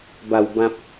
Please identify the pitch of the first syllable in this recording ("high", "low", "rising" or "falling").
low